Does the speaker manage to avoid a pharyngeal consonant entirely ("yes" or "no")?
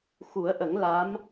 yes